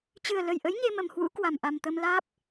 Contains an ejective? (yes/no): no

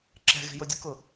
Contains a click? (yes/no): yes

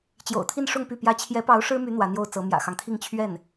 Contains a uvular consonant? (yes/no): no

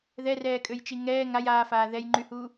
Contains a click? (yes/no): yes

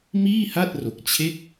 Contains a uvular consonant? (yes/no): no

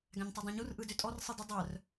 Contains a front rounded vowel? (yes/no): yes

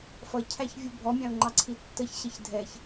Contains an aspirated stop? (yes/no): yes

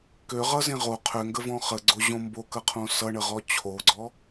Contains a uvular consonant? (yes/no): yes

